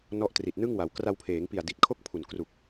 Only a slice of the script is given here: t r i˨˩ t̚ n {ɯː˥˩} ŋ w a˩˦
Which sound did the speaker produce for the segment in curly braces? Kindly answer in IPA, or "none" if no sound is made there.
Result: ɯ˥˩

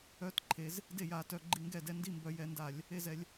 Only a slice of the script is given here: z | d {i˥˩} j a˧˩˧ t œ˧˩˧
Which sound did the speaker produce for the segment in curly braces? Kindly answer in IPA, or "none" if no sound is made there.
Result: e˥˩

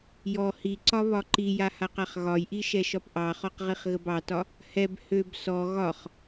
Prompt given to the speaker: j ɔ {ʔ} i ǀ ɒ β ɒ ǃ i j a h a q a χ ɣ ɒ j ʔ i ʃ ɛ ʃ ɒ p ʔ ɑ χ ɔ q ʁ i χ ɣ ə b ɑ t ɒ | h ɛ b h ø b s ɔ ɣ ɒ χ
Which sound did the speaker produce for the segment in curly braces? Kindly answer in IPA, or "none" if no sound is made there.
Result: h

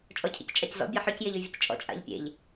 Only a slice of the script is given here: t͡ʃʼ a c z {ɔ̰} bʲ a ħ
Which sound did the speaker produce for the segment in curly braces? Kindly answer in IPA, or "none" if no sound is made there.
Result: ɔ̰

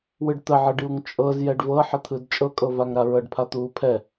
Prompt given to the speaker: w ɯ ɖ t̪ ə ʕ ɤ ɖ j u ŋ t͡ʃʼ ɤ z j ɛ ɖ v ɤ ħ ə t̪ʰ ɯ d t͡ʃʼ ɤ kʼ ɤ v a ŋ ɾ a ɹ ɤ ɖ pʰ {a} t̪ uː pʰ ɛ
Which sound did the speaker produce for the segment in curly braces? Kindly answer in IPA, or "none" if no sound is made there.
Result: a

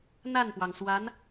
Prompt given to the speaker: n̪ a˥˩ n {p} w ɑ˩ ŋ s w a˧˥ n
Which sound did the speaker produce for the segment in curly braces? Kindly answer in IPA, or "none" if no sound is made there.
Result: p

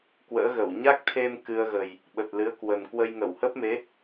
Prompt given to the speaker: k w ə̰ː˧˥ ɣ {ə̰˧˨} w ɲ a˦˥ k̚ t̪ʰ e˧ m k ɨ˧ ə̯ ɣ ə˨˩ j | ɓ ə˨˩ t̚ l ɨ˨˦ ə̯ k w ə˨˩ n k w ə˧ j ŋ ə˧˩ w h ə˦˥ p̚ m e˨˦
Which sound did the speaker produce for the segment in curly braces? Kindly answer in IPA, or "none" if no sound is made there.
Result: ə˧˩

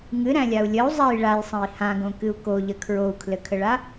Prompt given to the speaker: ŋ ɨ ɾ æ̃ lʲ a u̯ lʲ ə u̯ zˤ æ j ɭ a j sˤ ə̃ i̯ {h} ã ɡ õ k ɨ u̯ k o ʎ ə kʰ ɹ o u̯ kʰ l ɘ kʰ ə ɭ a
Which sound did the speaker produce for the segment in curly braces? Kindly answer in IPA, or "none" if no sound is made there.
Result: h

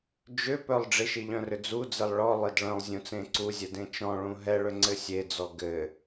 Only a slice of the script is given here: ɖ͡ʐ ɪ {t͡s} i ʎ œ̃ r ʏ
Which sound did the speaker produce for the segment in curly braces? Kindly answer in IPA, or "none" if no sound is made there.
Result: ʃ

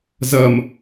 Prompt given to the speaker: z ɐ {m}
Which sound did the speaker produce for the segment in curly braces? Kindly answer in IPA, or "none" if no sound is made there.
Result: m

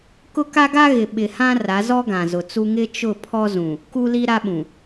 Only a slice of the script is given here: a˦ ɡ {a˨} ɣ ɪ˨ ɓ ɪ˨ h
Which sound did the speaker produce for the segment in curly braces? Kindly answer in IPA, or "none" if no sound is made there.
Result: a˦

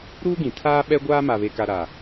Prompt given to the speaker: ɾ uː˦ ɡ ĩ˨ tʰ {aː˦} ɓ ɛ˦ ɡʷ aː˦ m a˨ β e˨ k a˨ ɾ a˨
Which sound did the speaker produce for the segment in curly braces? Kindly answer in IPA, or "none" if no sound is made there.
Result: aː˦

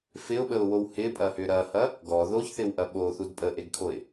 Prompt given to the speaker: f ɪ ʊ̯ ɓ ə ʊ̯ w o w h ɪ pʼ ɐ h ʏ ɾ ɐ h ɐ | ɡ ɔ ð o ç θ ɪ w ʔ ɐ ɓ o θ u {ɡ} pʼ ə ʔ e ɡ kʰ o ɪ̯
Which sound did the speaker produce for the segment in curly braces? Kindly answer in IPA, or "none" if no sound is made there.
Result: d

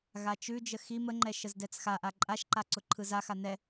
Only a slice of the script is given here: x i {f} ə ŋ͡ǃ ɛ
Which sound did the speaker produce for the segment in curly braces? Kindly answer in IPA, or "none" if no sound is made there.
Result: m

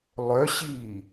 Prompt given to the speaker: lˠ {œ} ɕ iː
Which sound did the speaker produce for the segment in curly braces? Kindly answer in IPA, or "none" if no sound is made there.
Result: œ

